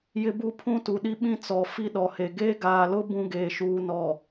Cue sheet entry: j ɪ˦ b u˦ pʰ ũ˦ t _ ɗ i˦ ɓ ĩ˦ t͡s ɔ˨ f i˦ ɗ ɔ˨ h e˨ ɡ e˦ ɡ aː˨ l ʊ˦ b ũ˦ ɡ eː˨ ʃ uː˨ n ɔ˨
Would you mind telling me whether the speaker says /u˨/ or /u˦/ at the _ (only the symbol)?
u˨